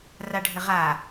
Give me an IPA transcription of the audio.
r a ɖʱ ɘ ʁ a

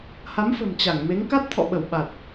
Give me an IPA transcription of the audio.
h a˨˦ m f ə̤˨˩ m t͡ɕ a˧˩ ŋ m e˨˦ ŋ k a˦˥ t̚ t̪ʰ ɔ̰˧˨ ɓ ə˧˩ w ɓ a˨˩ t̚

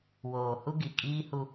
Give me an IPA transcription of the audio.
w oː˨ h u˦ ɡ i˨ kʼ iː˦ h u˦

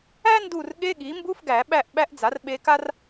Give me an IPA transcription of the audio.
æ˥ n d u˦˨ r ɠ e˧˥˧ ɠ i˩˥ m b u˧˥˧ f ɡ æ˨˩˦ ɓ æ˦˨ ʔ ɓ æ˧˥ ʔ d͡z a˩˥ r ɓ e˧˥ k a˥ r

